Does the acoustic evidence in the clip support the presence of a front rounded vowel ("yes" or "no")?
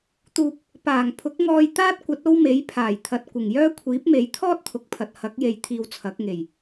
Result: yes